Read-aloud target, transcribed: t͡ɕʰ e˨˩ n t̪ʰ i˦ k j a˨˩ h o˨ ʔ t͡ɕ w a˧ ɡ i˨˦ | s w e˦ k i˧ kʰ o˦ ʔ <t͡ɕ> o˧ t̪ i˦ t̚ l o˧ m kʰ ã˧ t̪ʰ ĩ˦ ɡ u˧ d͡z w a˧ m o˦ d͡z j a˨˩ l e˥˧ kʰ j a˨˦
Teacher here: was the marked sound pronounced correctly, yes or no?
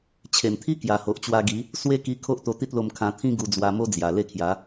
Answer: no